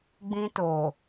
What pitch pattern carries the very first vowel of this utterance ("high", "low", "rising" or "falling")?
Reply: high